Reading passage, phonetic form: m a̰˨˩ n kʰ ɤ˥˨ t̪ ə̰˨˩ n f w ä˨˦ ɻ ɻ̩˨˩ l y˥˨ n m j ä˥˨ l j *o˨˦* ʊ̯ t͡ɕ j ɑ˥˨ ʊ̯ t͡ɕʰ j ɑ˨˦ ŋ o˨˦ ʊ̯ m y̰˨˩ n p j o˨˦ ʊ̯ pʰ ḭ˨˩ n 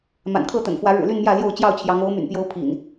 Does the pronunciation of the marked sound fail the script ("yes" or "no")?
yes